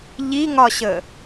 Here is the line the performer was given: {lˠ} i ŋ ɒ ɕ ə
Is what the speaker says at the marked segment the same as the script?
no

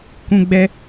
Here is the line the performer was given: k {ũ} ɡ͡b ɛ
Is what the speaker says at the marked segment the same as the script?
yes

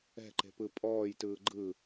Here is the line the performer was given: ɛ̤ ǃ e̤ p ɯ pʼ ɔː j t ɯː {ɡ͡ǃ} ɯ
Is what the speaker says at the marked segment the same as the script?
yes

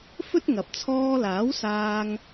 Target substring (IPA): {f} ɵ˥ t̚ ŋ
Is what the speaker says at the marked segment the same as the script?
yes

